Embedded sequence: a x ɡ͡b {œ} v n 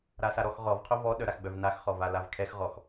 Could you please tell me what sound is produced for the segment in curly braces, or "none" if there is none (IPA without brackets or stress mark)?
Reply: œ